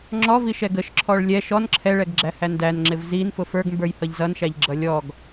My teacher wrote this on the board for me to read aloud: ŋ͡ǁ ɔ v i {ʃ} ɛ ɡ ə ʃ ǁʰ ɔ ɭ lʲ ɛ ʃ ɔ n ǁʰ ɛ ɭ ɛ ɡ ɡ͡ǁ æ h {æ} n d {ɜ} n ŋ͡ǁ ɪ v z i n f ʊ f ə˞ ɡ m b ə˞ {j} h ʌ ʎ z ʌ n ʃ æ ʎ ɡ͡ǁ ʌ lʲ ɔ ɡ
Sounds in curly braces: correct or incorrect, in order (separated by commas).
correct, correct, incorrect, correct